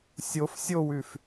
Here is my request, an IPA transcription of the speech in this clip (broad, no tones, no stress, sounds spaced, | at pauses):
sʲ o f sʲ o w ʉ f